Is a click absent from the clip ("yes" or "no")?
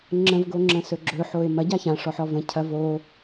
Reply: no